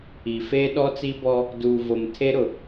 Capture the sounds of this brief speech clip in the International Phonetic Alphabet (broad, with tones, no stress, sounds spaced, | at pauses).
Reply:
i˨ f eː˦ ɗ ɔ˦ t͡s i˦ b ɔ˦ | d uː˨ v o˨ m tʰ e˦ ɾ ʊ˨